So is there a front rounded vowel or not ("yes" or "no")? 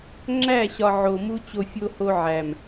no